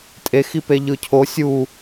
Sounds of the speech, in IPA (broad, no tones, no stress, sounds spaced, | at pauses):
tʼ e x i p e ʎ ɯ cʰ o sʲ u